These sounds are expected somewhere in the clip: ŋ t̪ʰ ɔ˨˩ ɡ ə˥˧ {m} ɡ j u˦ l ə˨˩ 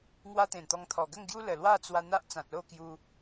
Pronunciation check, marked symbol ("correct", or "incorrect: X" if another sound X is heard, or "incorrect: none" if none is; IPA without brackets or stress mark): incorrect: ŋ